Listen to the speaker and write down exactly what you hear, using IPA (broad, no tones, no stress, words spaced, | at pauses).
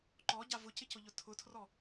ǃɔɟa vʊcɪcʊʎʊ tʰʊtʰrɔ